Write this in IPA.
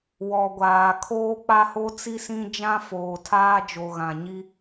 w ɔ˨ ɡʷ aː˨ kʰ oː˦ k͡p a˦ h o˦ t͡s i˦ s ĩ˦ d͡ʒ ã˦ f oː˨ tʰ aː˦ d͡ʒ o˨ ɣ ã˨ ɲ i˦

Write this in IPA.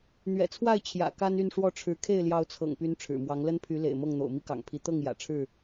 n̪ ɥ ɛ̰˨˩ t͡sʰ w a˥˨ ɪ̯ t͡ɕʰ j ä̰˨˩ k a˦ n y˥˨ n ʂ w ɔ˥˨ ʈ͡ʂʰ ɻ̩˨˦ kʰ e˥˨ ɪ̯ l j ɑ˨˦ ʊ̯ t͡sʰ ɤ̰˨˩ ŋ p y˨˦ n ʈ͡ʂʰ ɻ̩˨˩ m w ɑ˨˦ ŋ l ə˦ n pʰ y˨˦ l ḛ˨˩ ɪ̯ m ɤ˥˨ ŋ n̪ o̰˨˩ ʊ̯ m i˦ k ɑ̰˨˩ ŋ pʰ i˨˦ t̪ ɤ˥˨ ŋ j ä̰˨˩ ʈ͡ʂʰ ɻ̩˥˨

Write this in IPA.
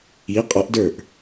i qʼ ɒ ʔ d ə˞ ʔ

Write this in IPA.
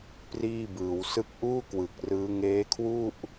p r iː˥˩ b ɯː˩˦ w s ɯ˥˩ k̚ ʔ uː˥˩ k w ɯ˨˩ k̚ r ɯː˦˥ ŋ eː˦˥ kʰ w u˥˩ ʔ

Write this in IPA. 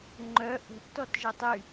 ŋ͡ǃ œ ʔ ə̤ ʔ t ɔ t ʒ ə tˤ y

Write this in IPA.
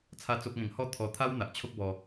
t͡sʰ a˦ t͡s o˦ p̚ ŋ ẽ˧ ŋ h ɔ˥˧ t̪ʰ ɔ˧ t̪ʰ a˦ w n̪ a˨ ʔ t͡ɕʰ o˦ k̚ b ɔ˧

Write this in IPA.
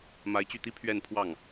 m a˧˥ ɪ̯ t͡ɕ y˥˩ t̪ i˥ pʰ ɥ ɛ˥˧ n pʰ w ɑ˥˩ ŋ

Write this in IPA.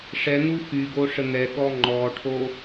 ʂ ɛ n̪ u x y ɡ o ʂ ə n̪ ɛ ɠ ɔ ŋ͡ǃ ɔ ʈʰ o

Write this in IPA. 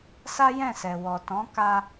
s a˦ j ɛ̃˦˨ s ɛ˨ w ɔ˨ t ɔ̃˨˦ k a˧

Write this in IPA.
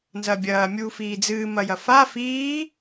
n z ɐ bʲ ɐː mʲ uː f iː d͡z ɨː m ɐ j ɐ f a f iː

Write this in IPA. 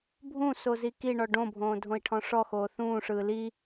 bʱ ũ s o z i k i ɳ ɔ ɖ õ bʱ õː dʱ õ i̯ ʈʰ ɔ̃ ʂ ɔ x oː θ ũː ʂ ɯː l i

